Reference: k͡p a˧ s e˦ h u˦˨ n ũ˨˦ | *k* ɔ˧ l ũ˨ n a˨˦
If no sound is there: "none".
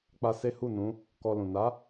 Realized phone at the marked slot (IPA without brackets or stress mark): k